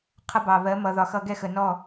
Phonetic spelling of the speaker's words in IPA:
qʰʌ˧bɑ˨βɜ˨˦ mʌ˨ðɒ˨xʌ˧ ɡɛ˦˨xə˨nɔ˦˨

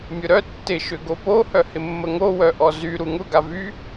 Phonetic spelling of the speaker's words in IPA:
mʲʊɾœ tːɪ ʃʏɡopo hœhɪmːəŋo wœʔɔzy ɾuŋʊ ɡavy

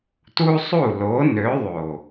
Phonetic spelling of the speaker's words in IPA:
tu˦sˤu˦˨lo˨˦ nø˨˦ðˤo˨

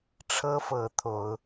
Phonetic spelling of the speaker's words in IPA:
ʈ͡ʂʰɤ˦fɤ˨˦ t̪ʰo˨˦ʊ̯

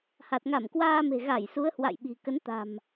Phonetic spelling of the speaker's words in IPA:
ha˨˩t̚ ŋa˧˩mkwaː˧ me̤˨˩ ɣa˧˩jsu˨˦ə̯hwa̰˧˨j ɓi̤˨˩kə˨˦nt̪a̤˨˩m

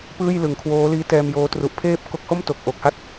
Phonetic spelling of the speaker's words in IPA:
pɯː˥˩j lɯ˩˦ŋkʰwoː˦˥liː˦˥ tɛː˧mjoː˦˥ tru˨˩ʔpʰeː˥˩p̚ ko˦˥k̚ ho˥˩mto˨˩k̚ ʔo˨˩k̚ha˥˩t̚

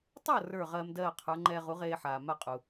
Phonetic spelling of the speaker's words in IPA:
tˤʌ˥˩ rə˞˥˩ʁɜː˧mdɜː˥˩qʰə˞˩˥ ŋ͡ǃɛː˧ʁu˩˥ʁeː˧ħaː˩ ma˥˩qʼu˩

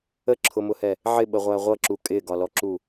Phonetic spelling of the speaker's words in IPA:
əǁʰʊmʊhɛ | ʕɪɓəʁʷæ ʁʷʌǁu kʼɪɡɒlɔǁu

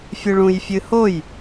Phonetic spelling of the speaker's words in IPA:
fʲɨɭũj fʲɨhoj

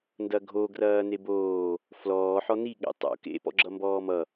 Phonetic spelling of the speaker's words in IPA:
ndɐɡʱo ɡrɐːneboː | flɔː ħɔni ɠḛtˤo̰ kḛ pɔ̰ɡ͡ǁʌmbɔːmʌ

